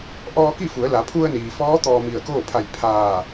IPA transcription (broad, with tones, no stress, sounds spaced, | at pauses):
ʔ ɔː˧ k i˥˨ f u˩˧ ə̯ l a˩˧ pʰ u˧ ə̯ n iː˩ f ɔː˧˥ t̪ ɔː˧ m i˧˩ ə̯ k oː˥˨ pʰ a˧˩ j pʰ aː˧˩